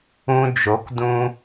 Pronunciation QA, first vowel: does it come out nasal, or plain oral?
nasal